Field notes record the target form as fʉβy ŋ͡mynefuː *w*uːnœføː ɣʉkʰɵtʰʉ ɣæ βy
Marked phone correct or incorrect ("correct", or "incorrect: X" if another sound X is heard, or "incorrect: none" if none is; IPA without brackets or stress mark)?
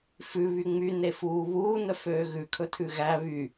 incorrect: β